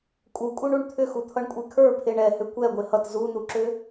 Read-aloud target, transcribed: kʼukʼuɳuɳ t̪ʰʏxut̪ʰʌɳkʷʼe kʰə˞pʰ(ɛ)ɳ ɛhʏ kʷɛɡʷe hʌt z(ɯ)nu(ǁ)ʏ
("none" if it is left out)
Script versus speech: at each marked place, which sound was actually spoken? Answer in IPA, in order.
e, u, ǁ

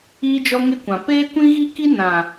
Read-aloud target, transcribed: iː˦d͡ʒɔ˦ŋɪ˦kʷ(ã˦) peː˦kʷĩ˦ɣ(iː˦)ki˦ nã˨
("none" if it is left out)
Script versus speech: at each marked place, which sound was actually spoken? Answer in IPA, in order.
ã˨, i˦

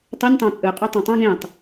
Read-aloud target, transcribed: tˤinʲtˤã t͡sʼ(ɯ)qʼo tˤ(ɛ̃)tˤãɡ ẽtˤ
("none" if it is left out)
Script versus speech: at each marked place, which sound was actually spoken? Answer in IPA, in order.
ɯ, ɛ̃

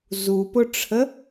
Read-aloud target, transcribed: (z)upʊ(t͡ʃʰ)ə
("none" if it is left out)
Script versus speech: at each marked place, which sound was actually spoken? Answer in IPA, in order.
z, ʈ͡ʂʰ

